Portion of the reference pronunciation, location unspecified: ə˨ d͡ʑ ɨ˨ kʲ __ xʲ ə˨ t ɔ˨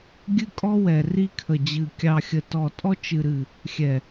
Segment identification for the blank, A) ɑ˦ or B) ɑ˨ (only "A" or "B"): B